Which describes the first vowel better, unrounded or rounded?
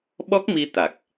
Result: rounded